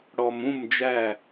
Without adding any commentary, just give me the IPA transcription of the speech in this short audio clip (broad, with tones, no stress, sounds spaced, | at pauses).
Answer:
ɽ ɔ˨ m ũ˦˨ m d͡ʒ æ˦˨